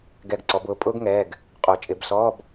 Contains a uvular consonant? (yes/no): yes